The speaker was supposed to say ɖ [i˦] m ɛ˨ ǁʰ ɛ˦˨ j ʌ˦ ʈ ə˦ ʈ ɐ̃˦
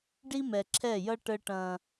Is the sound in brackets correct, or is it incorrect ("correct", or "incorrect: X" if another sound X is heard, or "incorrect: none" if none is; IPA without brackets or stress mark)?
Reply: correct